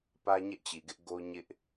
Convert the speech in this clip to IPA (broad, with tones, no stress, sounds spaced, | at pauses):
p ä˦ ɲ ɛ˦ ʔ t͡ɕ i˨ ɡ ɪ˦ ʔ ɡ o˦ ɲ ɪ˦ ʔ